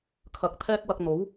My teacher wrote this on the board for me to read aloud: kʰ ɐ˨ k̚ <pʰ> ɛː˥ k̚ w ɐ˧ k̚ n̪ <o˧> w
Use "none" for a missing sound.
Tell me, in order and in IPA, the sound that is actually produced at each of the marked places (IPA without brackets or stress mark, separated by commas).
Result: t̪ʰ, o˨˥